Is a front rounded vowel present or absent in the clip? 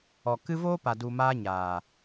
absent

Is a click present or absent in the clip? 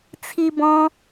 absent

